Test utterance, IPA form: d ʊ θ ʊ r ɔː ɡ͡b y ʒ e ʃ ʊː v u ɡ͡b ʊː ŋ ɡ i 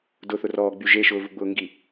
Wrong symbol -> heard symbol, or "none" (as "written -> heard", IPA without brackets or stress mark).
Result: none